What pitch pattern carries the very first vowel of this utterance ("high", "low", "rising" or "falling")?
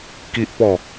high